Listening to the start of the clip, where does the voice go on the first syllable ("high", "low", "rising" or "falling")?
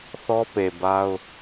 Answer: high